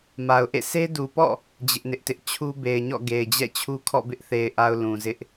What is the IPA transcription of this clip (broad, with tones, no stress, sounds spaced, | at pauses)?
m a˨ ʊ̯ ʔ ḛ˦˨ s e˦ d u˨ p ɔ̰˦˨ | d͡ʑ ɪ˦ ʔ n ɪ˦ ʔ t ɪ˦ ʔ t͡ɕʰ u˦ b e˨ ɪ̯ ɲ ɔ̰˦˨ ɡ e˨ ɪ̯ d͡ʑ ɛ̰˦˨ t͡ɕʰ u˦ kʰ ɔ̰˦˨ b ɪ˦ ʔ θ e˨ ɪ̯ ʔ a˨ ʊ̯ l ũ˨ z ɪ˦ ʔ